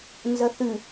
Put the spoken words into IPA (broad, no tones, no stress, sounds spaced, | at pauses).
n z ɐ θ ʉ